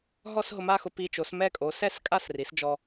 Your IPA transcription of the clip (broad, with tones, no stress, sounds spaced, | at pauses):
ɦ ɔ˥˧ s ɦ ʊ˧ m a˥˧ x ʊ˧ p i˧ t͡ʃ o˩˥ s m ɛ˥˧ kʼ o˩˥ s ɛ˥˧ s kʼ a˥˧ s r i˩˥ s d͡ʒ ɔ˧